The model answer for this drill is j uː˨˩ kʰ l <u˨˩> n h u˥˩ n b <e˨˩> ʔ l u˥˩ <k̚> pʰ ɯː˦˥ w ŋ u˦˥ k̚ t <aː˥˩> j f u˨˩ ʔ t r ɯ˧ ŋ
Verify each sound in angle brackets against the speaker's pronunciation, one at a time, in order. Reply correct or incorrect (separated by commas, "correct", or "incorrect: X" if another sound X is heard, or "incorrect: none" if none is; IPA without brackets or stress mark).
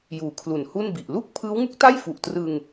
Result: correct, incorrect: i˨˩, correct, incorrect: a˥˩